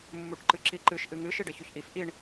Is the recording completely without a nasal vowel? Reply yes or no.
yes